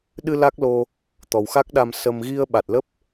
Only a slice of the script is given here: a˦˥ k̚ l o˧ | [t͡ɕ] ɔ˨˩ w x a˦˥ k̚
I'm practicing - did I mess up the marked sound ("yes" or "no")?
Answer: yes